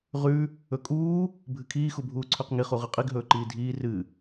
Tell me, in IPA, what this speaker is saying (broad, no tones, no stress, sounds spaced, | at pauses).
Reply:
ʁ ʉ | ɵ kʼ uː | bʱ ɨ kʰ iː x u bʱ uː ǀʰ ʉ q ŋ i χ u ʁ ɨ qʼ i ɡ ɦ ɵː ǃ iː dʱ iː r ɨ